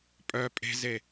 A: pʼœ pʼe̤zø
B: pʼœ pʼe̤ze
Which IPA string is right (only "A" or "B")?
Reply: B